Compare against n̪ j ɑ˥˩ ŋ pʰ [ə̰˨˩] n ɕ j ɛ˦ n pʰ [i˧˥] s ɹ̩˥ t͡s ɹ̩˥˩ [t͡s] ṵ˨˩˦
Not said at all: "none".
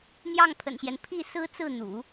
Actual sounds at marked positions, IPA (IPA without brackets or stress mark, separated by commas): ə̰˨˩, i˥˩, n̪